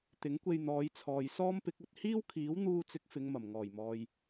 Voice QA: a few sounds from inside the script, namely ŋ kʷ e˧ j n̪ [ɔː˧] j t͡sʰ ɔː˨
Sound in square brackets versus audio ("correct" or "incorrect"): incorrect